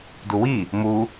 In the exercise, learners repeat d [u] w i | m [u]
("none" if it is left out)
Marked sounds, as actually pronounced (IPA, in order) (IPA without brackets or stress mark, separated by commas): u, u